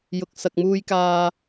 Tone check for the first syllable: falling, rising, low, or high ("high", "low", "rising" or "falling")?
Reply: low